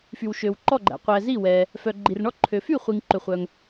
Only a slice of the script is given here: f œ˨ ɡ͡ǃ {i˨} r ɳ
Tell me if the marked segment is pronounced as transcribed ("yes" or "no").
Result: yes